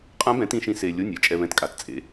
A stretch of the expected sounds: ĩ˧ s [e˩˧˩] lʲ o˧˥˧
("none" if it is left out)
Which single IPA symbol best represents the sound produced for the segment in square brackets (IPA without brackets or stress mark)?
e˧